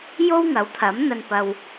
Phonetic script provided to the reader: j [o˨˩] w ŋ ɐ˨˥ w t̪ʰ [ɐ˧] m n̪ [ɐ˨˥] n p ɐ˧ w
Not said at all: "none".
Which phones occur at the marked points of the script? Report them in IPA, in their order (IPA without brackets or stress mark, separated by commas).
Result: o˥, ɐ˨˥, ɐ˧